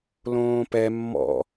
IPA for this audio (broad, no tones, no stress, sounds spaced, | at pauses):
l õː p ɛ mː ɔ̰